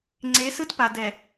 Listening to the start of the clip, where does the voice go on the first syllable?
rising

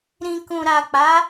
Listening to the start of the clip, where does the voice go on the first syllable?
low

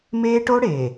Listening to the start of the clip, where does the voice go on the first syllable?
high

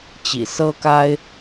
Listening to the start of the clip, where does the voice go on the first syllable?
low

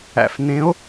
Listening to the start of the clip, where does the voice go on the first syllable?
low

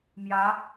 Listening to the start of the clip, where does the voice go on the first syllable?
rising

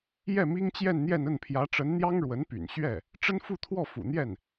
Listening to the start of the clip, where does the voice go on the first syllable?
falling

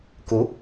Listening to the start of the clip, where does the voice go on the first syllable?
rising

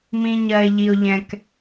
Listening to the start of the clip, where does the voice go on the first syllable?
low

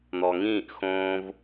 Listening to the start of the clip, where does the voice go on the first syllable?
low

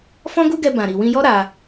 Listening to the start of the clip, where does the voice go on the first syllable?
high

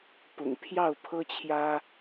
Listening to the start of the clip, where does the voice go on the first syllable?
low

